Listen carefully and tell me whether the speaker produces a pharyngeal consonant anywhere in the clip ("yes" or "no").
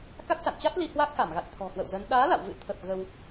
no